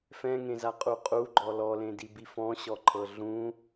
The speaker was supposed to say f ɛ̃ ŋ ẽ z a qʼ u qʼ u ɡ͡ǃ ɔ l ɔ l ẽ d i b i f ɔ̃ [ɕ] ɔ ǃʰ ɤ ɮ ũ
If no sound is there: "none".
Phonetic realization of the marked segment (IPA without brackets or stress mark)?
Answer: ɕ